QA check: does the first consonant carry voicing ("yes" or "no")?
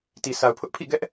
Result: no